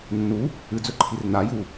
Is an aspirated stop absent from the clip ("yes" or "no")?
no